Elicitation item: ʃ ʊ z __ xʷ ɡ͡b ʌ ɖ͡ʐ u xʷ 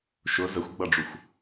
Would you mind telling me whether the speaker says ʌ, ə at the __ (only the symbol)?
ə